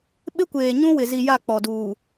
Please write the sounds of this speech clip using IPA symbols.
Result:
ɓ ɪ˦ kʷ eː˨ ɲ ũ˦ w ɪ˨ z i˨ j a˦˨ k͡p ɔ˨ d uː˨

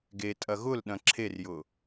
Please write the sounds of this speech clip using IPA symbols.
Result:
ɡ e tʼ ɐ ɣ ʊ l ɗ ɐ̃ ǁʰ e r j ʊ

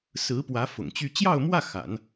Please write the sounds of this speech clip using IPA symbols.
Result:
s ɹ̩˧˥ p w ä˧˥ f ʊ̰˨˩ ŋ t͡ɕ y˥˧ t͡ɕ j ɑ˥˧ ʊ̯ m w ä˥˩ x a̰˨˩˦ n

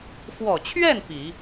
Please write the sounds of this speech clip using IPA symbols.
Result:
f w ɔ˨˩ t͡ɕʰ ɥ ɛ˥˩ n p i˨˩˦

